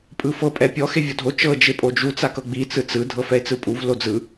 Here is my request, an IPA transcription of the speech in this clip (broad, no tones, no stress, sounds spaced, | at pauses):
pʼ ɯ f ɤ pʼ ɛ pʲ ɔ x e vʲ ɔ dʱ o t͡ʃ ɤ d͡ʒ e pʼ o d͡ʒ u t͡s a k ɤ ɡ͡b i t͡s ɯ t͡s ɯ dʱ ɤ f ɛ e̯ t͡s ɯ pʼ u v l o d͡z ɯ